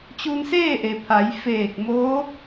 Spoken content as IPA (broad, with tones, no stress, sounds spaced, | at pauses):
t͡ɕ u˧ n s eː˥˨ ʔ e˩ pʰ a˩˧ j f eː˧˩ k̚ m oː˧˥